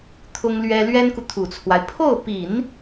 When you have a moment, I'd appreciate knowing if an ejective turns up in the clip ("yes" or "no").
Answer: no